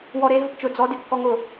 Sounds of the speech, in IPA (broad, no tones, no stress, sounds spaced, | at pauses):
w ɔ ɾ e ɦ ʊ p t͡ʃ ʊ d͡z ɔ d ɪ kː ɔ ŋ ʊ